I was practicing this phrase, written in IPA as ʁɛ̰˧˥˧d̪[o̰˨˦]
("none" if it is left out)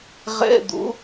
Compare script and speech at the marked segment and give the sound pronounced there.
o̰˨˦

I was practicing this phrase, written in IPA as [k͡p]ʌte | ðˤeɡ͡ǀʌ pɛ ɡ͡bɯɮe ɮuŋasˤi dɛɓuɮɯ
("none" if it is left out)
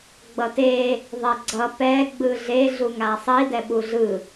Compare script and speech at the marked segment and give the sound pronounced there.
ɡ͡b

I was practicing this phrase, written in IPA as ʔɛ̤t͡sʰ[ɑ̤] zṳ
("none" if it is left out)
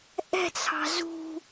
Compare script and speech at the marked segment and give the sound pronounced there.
ɑ̤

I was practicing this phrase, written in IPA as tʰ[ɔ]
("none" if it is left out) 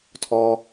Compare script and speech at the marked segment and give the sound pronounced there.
ɔ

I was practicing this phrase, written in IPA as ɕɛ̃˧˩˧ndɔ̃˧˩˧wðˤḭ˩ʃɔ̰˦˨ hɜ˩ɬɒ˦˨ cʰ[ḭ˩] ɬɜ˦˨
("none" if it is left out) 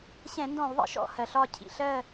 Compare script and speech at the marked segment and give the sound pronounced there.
ḭ˩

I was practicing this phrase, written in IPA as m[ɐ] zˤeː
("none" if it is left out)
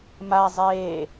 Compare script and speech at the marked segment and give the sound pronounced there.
a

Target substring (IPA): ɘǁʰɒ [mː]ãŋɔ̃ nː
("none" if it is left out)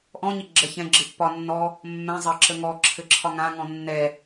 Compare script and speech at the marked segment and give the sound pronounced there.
ŋ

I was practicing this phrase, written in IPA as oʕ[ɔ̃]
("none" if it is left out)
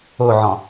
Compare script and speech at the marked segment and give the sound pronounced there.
ɔ̃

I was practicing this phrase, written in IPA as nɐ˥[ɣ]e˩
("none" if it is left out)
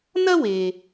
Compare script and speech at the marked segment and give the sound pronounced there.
w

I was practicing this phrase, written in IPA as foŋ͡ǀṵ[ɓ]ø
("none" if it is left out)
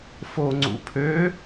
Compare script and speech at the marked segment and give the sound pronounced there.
pʰ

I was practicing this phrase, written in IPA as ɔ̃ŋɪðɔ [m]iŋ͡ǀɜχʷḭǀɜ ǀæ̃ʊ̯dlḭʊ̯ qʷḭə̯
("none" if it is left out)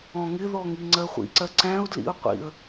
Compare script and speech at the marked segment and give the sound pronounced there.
ŋ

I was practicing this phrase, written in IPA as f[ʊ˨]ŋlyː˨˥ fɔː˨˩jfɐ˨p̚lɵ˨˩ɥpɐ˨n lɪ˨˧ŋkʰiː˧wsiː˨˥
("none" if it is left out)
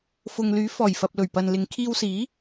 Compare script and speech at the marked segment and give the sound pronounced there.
ʊ˨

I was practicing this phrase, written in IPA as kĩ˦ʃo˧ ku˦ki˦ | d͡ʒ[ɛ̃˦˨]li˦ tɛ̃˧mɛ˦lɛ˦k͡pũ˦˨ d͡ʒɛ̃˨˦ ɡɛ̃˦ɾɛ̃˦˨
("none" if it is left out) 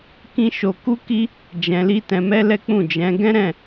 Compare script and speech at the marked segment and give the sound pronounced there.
ɛ̃˧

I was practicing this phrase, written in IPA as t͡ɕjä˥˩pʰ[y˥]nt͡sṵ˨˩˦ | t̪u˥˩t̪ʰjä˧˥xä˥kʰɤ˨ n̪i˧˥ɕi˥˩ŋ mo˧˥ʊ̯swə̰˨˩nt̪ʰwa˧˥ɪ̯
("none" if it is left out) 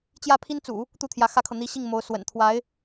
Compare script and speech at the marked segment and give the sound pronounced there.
i˥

